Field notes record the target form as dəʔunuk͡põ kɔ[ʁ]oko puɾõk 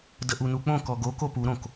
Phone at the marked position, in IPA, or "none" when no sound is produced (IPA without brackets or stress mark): ɡ